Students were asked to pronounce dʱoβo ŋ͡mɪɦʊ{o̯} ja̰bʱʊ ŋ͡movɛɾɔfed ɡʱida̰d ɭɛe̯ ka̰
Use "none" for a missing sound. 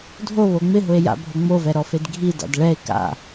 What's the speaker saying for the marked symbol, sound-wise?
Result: e̯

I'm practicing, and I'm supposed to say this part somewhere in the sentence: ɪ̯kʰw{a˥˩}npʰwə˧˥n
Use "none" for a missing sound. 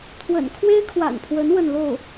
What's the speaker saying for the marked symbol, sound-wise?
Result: a̰˨˩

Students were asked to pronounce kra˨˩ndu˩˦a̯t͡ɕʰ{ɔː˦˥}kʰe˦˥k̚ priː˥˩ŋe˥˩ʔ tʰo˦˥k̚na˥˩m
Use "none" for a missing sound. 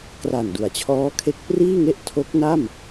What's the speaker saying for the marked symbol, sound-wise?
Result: ɔː˦˥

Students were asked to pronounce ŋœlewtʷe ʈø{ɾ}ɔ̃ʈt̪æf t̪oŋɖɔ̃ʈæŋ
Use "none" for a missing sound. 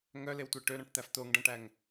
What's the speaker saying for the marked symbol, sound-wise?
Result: ɾ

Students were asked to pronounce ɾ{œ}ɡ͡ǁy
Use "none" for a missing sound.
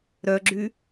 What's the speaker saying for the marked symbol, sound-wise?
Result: œ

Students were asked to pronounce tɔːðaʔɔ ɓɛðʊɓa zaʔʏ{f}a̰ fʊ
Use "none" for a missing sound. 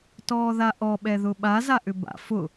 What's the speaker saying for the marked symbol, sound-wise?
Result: b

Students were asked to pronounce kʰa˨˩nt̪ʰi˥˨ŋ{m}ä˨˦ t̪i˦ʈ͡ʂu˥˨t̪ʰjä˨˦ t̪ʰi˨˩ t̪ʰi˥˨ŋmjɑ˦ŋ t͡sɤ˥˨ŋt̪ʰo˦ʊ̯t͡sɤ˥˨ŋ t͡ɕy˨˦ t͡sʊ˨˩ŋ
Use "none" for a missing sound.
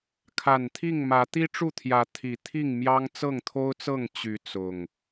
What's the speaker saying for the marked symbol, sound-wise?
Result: m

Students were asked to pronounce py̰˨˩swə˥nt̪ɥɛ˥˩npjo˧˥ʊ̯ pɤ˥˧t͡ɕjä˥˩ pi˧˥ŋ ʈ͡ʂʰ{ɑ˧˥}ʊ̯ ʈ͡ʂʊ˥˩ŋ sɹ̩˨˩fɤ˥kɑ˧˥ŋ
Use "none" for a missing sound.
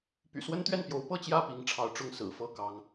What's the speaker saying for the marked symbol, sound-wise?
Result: ɑ˧˥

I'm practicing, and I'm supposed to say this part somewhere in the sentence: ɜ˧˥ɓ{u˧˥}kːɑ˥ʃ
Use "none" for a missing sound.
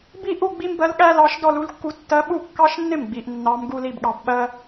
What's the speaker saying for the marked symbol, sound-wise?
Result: u˥˩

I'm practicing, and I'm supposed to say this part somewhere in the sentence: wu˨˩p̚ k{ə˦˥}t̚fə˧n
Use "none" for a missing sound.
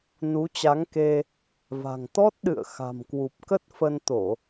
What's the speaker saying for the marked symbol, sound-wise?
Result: ə˦˥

